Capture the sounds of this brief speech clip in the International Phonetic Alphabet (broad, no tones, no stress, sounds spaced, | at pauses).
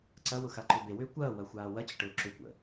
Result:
ǀ ɐ w ʊ x a ǃ ʏ b e w ʏː kʷ ɐː w ɐ xʷ aː w ɐ t͡ɕ ə ʈ ʊː ǁ ʏ kʷ ə̰